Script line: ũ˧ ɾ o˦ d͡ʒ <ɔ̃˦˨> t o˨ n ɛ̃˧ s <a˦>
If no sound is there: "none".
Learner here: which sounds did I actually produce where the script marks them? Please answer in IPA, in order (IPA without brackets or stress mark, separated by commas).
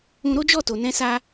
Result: ɔ˦˨, a˦